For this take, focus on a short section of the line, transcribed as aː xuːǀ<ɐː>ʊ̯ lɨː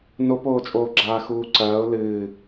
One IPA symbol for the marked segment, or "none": ɐː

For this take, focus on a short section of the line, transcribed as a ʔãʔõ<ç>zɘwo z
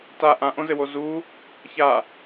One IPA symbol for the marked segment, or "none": none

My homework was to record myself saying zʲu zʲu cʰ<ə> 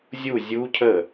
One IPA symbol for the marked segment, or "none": ə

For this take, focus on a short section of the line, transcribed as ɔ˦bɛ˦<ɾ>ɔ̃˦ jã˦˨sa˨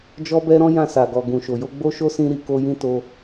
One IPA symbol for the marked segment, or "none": ɾ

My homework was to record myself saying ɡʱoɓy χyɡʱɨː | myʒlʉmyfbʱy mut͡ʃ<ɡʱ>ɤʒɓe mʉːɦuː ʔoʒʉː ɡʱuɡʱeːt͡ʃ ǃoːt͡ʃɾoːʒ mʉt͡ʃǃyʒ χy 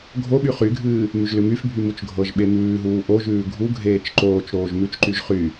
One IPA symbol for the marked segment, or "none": ɡʱ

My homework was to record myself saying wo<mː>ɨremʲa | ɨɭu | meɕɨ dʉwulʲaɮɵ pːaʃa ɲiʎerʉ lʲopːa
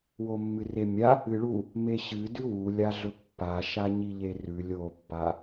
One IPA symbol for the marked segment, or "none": mː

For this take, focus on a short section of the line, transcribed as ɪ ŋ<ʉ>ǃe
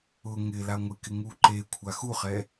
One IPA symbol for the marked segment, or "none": u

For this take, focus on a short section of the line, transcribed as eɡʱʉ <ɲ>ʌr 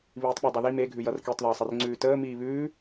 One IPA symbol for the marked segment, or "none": j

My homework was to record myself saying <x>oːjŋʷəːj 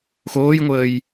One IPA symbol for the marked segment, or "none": x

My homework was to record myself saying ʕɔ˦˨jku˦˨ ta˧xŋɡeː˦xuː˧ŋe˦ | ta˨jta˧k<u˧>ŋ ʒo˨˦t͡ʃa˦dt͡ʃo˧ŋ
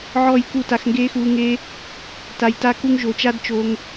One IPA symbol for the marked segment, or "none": u˧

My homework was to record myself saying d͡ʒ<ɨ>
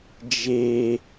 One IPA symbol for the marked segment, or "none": e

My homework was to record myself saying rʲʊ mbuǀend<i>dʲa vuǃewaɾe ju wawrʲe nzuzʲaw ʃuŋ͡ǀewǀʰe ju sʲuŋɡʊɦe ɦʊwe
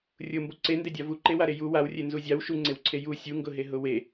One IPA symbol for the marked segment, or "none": e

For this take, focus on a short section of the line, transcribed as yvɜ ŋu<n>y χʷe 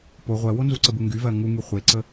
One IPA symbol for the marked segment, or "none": ŋ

